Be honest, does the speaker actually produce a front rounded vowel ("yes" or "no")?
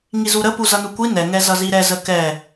no